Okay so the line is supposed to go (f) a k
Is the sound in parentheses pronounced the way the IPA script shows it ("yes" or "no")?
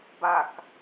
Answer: no